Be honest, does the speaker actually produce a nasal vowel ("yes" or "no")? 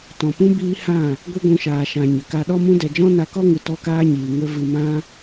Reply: yes